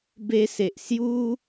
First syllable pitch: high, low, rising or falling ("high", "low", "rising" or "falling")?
high